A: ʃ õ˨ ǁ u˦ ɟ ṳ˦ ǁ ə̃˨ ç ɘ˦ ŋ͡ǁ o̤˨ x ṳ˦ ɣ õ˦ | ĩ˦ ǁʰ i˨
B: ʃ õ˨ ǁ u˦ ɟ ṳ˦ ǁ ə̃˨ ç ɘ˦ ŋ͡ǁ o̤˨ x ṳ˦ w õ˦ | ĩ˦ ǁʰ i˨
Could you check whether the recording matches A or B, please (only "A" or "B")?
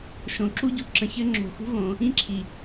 A